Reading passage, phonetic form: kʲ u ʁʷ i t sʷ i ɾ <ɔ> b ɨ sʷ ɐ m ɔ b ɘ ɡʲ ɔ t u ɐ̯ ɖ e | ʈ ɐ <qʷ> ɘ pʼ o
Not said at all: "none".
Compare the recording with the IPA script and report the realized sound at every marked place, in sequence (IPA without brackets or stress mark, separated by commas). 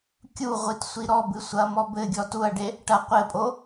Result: ɔ, qʷ